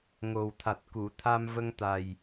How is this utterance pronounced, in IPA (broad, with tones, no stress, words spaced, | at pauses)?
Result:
ŋo˨˩wt̪ʰa˨˩t̚ku˨˩˨ t̪ʰa˧mvə˧ŋt̪a˨˩j